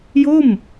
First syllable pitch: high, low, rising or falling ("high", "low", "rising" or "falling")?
falling